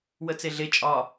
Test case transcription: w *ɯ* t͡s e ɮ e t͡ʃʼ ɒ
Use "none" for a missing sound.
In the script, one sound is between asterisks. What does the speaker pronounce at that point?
ə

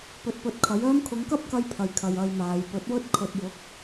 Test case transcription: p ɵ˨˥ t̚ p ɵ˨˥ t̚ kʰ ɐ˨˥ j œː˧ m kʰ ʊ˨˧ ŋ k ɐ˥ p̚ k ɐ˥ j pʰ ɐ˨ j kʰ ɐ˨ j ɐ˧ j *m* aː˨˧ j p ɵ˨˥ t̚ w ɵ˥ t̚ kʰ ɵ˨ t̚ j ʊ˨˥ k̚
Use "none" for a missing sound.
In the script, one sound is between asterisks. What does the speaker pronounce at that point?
m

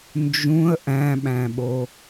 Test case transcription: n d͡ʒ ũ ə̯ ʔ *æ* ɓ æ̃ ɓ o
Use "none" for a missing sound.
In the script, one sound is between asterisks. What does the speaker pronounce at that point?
æ̃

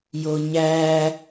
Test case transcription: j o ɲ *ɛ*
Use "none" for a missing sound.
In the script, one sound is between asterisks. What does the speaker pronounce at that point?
æ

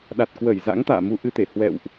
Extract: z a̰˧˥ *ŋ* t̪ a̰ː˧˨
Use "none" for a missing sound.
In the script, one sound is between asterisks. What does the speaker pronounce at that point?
ŋ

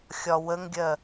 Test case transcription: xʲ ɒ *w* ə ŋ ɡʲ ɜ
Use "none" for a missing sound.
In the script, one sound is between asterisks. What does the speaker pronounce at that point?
w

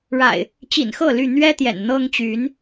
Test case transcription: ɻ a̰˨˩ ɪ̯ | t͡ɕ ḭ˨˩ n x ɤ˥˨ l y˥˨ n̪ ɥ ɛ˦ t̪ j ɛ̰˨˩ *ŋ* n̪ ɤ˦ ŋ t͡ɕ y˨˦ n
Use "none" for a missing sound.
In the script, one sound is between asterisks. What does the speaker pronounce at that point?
n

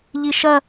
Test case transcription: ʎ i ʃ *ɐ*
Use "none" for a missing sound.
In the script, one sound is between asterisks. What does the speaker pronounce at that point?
ɐ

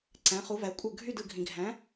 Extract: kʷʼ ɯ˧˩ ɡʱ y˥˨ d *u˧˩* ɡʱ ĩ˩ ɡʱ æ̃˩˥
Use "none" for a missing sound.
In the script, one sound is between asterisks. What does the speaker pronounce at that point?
ɯ˧˩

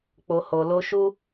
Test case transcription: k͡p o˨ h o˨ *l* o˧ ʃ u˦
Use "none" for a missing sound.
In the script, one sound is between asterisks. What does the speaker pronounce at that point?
l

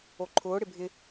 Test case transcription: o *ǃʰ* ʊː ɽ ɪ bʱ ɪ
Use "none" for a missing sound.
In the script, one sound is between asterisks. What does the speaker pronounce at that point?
ǃʰ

